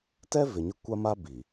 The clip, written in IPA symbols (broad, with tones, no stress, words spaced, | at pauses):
tɛ˦ vɪ˨ɲɪ˦ kʷa˦ma˦ bi˨